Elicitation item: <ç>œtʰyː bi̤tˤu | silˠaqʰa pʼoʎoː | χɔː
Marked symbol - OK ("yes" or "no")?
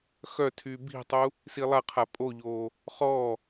no